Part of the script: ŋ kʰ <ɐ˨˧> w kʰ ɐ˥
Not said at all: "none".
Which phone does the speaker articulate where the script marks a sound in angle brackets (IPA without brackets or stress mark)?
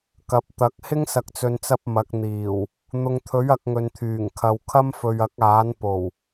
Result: ɐ˨